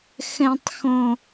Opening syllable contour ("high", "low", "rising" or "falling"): low